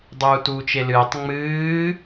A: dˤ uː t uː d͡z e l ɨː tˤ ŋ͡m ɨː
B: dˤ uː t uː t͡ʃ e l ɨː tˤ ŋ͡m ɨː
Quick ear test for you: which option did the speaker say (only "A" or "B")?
B